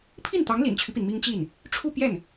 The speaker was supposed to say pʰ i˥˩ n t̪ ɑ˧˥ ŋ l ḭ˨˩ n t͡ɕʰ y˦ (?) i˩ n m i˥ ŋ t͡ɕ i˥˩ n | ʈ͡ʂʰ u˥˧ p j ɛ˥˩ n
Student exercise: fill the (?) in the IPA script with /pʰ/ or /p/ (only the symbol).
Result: p